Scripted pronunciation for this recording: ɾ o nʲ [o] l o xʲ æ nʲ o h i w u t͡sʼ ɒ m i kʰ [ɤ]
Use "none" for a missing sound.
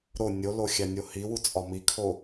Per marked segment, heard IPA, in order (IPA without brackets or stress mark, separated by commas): o, o